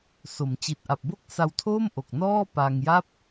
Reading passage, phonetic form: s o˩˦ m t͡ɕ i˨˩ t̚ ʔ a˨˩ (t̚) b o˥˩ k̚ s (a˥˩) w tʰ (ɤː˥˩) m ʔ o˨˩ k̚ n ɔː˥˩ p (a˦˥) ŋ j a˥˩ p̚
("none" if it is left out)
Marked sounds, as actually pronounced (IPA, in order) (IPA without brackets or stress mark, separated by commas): p̚, a˧, oː˥˩, a˧